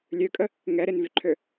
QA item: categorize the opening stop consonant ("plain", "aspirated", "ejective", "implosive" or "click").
ejective